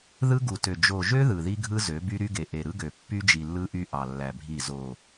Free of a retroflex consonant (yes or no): yes